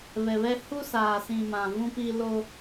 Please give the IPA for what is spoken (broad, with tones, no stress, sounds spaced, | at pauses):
β ɛ˨ β ɛ˦ h u˦ s aː˨ s ĩ˨ m ã˨ v ũ˦ p i˦ l o˦